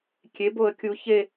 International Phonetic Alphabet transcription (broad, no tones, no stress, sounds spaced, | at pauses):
kʲ e b o ə̯ kʲ u ç e